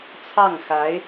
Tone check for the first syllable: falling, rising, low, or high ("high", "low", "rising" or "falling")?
falling